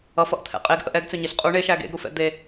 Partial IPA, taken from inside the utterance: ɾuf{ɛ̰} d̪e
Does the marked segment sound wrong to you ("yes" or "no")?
no